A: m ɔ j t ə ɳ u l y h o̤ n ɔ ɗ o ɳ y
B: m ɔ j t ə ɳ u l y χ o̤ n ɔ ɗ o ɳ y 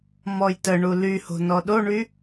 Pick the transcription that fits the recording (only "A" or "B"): A